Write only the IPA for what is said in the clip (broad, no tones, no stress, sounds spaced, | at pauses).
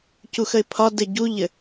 c u x ə ɪ̯ pʰ ɒ d ɘ ɟ u ʎ ɘ